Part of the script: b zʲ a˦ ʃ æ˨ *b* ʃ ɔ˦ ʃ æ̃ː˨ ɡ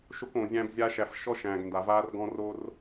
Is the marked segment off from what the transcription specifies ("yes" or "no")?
yes